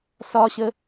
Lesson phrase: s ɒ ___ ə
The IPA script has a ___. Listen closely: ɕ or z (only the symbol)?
ɕ